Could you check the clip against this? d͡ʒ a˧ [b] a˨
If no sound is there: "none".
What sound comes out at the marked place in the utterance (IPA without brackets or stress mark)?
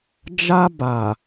b